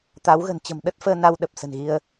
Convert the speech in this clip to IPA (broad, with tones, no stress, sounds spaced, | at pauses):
t̪ a˨˦ w ɣ ə̤˨˩ n t͡ɕ ə̤˨˩ m ɗ ə˦˥ t̚ f əː˧ n a˧ w ɗ ə˨˩ p̚ s ə̤˨˩ n ɣ i˧ ə̯